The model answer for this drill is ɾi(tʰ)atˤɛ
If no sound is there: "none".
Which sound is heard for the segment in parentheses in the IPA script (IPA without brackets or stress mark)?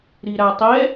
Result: ɾ